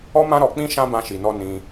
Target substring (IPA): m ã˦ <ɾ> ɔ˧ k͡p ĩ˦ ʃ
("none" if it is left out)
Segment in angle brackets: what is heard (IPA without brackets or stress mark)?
ɾ